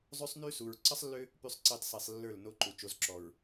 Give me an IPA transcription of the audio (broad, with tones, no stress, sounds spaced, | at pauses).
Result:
zˤ ø˦ sˤ n y˦ s u˨ ɹ ǀ ə˦ sˤ lː ø˦ | p y˨ sˤ ǀ e˨ tˤ s i˨ sˤ lː ə˞˦˨ l n o˦ ǃ u˨ t͡ʃ o˨ z ǁ ɔ˨ ɹ